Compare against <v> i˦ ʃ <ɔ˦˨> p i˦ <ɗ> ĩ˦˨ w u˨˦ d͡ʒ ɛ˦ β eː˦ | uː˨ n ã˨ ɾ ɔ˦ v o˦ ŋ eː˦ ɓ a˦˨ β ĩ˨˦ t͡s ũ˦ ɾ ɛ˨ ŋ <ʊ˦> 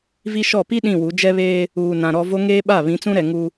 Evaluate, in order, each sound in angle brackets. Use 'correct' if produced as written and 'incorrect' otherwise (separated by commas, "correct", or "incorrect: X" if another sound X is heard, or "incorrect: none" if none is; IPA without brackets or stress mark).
correct, correct, correct, incorrect: u˦